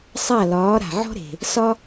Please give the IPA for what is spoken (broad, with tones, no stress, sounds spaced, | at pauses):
sˤ a˥˩ l ɒː˩˥ ɾ a̤˩ ʕ ɔ̤˥ ɾ e̤˩ | s ɒ˥